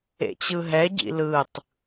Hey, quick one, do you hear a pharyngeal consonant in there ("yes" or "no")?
no